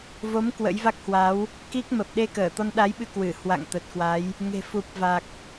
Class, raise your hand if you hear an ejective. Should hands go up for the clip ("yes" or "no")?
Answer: no